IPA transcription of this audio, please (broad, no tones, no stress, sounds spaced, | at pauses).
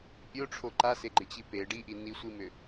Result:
pʲ o ʈ͡ʂʰ o ǃ a s e ɡ͡ǃ ɪ t͡ɕ i p e ɖ i ʔ i n i sʷ i m ʏ